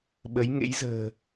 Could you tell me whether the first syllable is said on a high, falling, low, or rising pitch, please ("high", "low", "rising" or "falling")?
rising